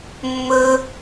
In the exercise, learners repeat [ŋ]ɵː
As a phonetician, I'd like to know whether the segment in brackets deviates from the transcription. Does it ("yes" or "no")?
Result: yes